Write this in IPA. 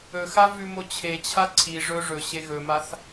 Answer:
ɵ x a v ʉ m o t͡ɕʰ e t͡ɕʰ a ǀʰ i ʐ ɵ ʐ ɵ ɕ e ɣ ɵ m a θ

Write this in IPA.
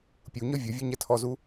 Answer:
pʲ u ɲ ɔ vʲ ɔ vʲ ɤ ɲ ɛ tʰ ɔ z u

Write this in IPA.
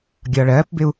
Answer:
ɡʲ ɒ ɭ ɜː p b ɪ u̯

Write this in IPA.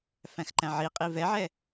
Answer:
f æ̃ x ǃ æ̃ ʕ i qʼ i v ɛ ʕ ɛ

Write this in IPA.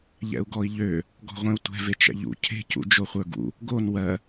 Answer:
ʎ ɛ̰ u̯ ɡ ɔ i̯ ʎ ø | ɡ ɔ̤ ʁʷ ẽ u̯ tʷ ɛ̤ v e t͡ʃ ɛ̰ ʎ ṵ cʰ e̤ c ṵ d͡ʒ o χʷ ə˞ ɡ ṵ | ɡ o n w ɜ

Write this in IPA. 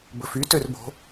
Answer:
b ɵ f y t ø r b o̤

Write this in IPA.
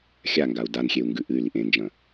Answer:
xʲ a ŋ ɡ a u̯ d a n xʲ e u̯ ŋ ɡ ʉ ʔ ɨ y̯ l i ʔ ẽ n d͡ʒ ɐ̃

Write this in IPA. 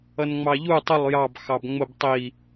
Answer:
ʌ n ŋ͡m ɑ ʎ u tˤ ʊ lˠ j ɑ b x ɑ b ŋ͡m ʊ b tˤ i

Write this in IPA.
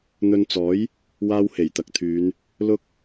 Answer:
n̪ ɵ˧ n t͡s ɔː˨˥ j | w aː˥ w h e˨˩ j t̪ ɐ˨ k̚ t̪ʰ yː˨˧ n | l ʊ˥ k̚

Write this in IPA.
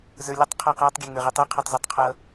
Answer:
z ə˞ lʲ ʌ tˤ qʰ a q a tˤ ɡʲ ɛ ŋ ə˞ ʁ i tˤ i qʰ o tˤ z i tˤ qʰ ʌ

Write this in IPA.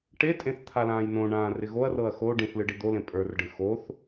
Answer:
ʈ e tʼ ẽ θ t̪ʰ a l ãː j n õ ɳ ãː r ɪ ɣ o ɐ̯ r ɤ ɐ̯ x o ɖ ĩ θ l ɨ ɖ i d̪ o l ẽ pʼ ə˞ r ɖ ɨ x o θ

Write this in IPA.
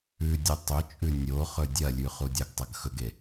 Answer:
ʉ dʲ ʉ tˤ ɵ t͡ʃʼ ʉ nʲ o χ ɵ dʲ ɐ lʲ ʉ χ u dʲ ɐ ɡ tˤ ɐ ɡ x ɵ ɡ e

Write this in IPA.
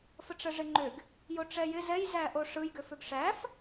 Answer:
f ə ʈ͡ʂ ə ʐ ɪ ŋ͡ǃ ʏ ɡ | j o ʈ͡ʂ ɛ j ɪ z ɛ j z æ ʔ o ʂ ɯ j ɡ ʏ f ʏ ɡ ʂ æ f

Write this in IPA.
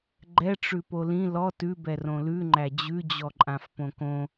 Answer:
ɡ͡ǃ ɛ ʈ͡ʂ ʉ p o l ĩ l ɔ t ʉ b ɛ r õ l ʉ ŋ͡ǃ æ d͡ʑ ʉ d͡ʑ ɔ ǃʼ ã f p õ k õ

